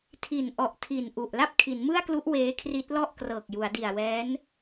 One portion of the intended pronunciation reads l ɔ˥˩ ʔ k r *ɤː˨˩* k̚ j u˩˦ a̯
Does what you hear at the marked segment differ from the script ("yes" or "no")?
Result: no